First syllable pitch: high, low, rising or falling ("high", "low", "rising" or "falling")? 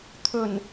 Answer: low